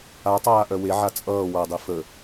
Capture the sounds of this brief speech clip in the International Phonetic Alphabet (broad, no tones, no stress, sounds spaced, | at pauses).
a tˤ aː ʔ œ w e ʕ a t͡sʼ ʌː w ʌ dˤ i f ə